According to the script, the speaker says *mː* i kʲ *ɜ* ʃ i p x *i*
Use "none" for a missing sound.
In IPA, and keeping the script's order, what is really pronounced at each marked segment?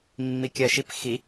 mː, ɜ, i

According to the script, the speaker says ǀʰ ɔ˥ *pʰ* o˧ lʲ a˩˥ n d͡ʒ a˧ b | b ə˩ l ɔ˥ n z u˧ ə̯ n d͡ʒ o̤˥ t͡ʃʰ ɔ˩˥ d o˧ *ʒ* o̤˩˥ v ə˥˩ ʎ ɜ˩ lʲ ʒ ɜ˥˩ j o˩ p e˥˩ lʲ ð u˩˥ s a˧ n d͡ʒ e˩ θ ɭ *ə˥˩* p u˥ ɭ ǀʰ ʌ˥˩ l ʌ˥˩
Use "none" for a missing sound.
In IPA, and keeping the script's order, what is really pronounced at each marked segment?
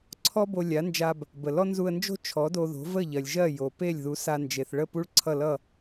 b, ð, ə˥˩

